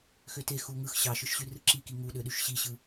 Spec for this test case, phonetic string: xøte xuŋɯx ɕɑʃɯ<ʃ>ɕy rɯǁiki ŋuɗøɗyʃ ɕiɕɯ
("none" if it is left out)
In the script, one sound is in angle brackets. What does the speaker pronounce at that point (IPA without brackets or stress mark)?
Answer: ʃ